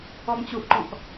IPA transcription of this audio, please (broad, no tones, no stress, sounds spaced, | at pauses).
ɔ m t͡ɕ u ʔ ǃ ɔ̃ k